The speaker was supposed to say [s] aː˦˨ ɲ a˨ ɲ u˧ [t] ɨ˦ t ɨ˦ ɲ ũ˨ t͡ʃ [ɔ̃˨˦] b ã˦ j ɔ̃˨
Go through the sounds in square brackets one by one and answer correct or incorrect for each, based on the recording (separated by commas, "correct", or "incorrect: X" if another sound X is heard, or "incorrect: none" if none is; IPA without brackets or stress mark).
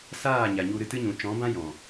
correct, incorrect: ɾ, correct